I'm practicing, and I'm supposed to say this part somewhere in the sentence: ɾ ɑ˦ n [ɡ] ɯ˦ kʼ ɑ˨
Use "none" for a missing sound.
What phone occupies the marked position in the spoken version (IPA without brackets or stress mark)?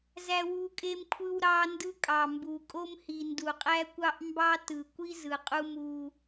d